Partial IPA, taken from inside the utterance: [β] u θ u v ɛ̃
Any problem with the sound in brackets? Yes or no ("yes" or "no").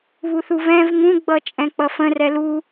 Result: no